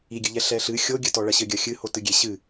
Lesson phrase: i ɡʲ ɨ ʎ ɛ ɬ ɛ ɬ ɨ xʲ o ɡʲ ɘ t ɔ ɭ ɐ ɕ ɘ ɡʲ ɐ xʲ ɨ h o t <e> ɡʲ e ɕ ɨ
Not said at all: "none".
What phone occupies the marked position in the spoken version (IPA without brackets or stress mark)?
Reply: ɨ